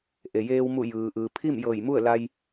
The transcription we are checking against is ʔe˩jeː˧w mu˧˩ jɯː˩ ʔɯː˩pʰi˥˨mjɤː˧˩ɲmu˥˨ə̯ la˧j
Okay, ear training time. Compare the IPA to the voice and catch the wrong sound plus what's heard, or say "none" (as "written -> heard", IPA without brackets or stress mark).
ɲ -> j